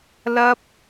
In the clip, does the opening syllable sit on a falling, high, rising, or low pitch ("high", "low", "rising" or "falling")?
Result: high